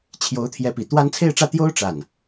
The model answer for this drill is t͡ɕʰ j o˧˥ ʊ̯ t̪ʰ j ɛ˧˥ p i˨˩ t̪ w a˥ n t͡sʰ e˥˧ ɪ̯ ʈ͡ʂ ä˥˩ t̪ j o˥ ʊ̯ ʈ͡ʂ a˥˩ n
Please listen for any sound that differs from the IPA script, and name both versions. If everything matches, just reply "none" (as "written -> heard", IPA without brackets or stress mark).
none